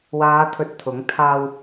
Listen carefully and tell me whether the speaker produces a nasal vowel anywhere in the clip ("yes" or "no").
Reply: no